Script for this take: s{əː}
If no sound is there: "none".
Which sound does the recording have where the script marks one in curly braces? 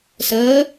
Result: əː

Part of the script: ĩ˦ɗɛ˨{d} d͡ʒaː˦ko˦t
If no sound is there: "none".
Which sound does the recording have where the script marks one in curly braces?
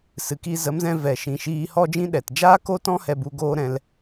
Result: t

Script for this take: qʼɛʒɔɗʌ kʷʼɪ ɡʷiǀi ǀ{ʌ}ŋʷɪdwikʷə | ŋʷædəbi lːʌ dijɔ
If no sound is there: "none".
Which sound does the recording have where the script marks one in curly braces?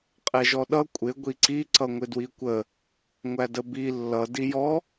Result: ʌ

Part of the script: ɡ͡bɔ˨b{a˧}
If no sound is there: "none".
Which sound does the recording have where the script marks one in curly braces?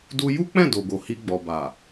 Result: a˨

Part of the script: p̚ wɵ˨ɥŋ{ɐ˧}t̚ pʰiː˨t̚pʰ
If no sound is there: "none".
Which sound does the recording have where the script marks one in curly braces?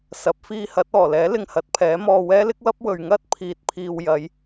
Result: ɐ˥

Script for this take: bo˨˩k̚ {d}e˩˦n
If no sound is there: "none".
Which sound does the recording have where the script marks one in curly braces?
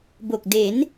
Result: d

